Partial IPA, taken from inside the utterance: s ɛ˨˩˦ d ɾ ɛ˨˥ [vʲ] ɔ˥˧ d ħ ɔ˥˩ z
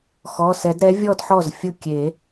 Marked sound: correct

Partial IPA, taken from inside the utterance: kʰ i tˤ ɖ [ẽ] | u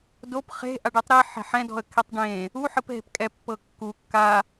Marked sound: correct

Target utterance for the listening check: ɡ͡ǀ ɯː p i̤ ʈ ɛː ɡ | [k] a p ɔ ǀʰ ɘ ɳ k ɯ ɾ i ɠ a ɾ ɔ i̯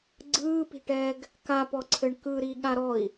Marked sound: correct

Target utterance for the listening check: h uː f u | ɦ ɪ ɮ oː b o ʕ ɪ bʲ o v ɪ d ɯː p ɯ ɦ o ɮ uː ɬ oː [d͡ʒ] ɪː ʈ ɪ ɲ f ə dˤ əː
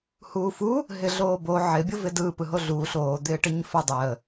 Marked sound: incorrect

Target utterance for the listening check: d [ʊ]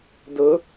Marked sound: correct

